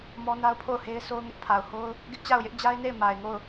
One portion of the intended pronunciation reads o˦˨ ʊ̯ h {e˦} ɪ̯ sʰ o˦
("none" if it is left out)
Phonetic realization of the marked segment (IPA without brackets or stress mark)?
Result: e˦